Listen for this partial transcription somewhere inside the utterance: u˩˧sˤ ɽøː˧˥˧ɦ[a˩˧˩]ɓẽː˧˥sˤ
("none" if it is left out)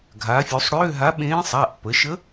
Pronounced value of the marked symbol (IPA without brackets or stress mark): a˧˥